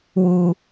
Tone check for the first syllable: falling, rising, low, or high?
low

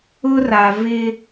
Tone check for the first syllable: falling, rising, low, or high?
high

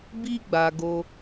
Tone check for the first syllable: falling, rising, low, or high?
high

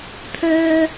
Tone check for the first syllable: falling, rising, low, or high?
low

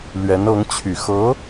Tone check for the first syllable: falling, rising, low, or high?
rising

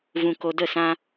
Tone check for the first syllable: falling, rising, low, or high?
low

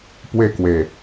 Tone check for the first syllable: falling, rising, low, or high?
falling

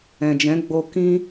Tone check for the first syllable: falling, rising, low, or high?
low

